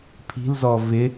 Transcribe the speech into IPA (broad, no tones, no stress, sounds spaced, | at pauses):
pʰ i̤ l z ɔ v ɪ